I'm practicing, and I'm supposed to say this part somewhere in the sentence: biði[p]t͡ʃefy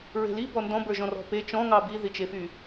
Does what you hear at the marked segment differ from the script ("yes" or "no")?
yes